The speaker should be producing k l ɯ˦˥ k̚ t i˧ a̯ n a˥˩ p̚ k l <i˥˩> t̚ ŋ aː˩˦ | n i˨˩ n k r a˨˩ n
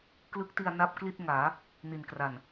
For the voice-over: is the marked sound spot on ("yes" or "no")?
yes